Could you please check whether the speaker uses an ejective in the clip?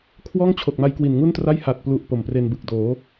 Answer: no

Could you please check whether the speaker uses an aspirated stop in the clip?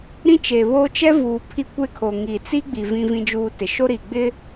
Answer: yes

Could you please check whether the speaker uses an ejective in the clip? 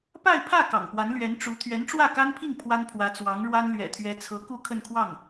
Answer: no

